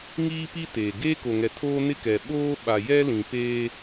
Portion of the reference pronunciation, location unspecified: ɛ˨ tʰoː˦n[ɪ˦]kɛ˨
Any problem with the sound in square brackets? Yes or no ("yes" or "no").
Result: no